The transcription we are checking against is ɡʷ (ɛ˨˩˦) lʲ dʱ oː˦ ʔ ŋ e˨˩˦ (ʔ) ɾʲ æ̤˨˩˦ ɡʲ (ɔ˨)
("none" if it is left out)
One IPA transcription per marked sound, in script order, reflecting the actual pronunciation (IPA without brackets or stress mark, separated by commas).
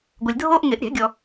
ɛ˨, ʔ, ɔ˨